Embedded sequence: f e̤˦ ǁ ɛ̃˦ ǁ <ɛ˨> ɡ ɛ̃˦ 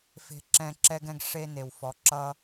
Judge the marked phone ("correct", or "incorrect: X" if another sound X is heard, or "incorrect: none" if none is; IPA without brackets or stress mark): incorrect: ɛ˦